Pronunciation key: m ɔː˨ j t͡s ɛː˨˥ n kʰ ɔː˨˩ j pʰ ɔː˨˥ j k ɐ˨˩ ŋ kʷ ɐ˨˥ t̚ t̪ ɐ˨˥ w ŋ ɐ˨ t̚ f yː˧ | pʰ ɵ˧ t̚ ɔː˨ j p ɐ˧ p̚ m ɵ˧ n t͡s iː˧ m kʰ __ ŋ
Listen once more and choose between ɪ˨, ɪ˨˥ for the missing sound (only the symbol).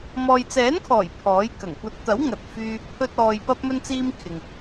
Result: ɪ˨